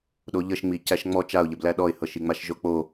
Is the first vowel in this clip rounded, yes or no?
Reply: yes